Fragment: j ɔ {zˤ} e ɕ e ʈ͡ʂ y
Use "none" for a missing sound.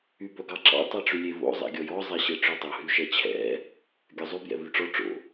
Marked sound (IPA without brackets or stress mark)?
zˤ